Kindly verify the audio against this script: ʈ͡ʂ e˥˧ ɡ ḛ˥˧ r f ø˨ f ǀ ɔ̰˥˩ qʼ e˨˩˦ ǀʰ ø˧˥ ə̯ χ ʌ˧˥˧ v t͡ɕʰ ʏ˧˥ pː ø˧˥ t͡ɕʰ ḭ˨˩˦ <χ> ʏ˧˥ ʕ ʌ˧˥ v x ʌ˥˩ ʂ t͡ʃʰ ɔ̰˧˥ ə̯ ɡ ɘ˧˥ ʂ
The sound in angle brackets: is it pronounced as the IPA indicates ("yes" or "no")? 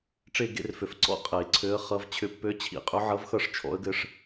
no